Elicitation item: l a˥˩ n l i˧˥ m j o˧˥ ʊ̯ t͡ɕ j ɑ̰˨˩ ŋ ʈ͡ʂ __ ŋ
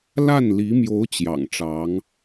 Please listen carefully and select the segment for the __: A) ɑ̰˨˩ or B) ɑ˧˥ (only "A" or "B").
B